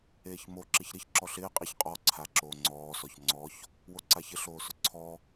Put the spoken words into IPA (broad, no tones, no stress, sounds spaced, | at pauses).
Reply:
eː ç m o ǁ ɪ ç ɾ ɪ ç ǁ ɔ ɬ ɪː qʼ i ç qʼ ɔ ǀʰ a ǁ oː ŋ͡ǀ ɔː s ɔ ç ŋ͡ǀ ɔ ç | w o ǀ a ç ɪ ɬ oː s ʊ ǀʰ ɔ